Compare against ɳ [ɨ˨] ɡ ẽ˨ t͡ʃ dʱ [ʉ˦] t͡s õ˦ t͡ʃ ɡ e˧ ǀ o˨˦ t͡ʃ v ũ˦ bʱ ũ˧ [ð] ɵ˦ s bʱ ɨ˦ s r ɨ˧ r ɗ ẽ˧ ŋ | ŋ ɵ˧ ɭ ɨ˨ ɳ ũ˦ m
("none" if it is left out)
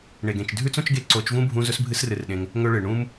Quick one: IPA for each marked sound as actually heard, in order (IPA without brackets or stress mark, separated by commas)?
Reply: e˨, ʉ˦, z